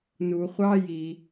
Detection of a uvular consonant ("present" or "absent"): present